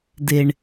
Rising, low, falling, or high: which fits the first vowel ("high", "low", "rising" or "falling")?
low